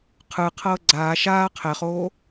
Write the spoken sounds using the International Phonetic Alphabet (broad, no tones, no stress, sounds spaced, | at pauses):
qʰ ɯ qʰ ɤː ɡ͡ǀ aː ʃ aː qʰ ɛ χ oː